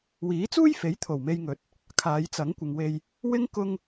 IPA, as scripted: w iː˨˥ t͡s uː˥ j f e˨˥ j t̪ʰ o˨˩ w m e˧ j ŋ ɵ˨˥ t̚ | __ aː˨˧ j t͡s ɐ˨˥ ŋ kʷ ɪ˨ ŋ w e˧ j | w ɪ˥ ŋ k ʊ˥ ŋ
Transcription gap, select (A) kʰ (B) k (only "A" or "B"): A